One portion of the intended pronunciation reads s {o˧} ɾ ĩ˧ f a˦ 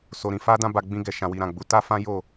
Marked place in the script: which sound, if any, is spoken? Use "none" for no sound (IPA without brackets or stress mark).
o˧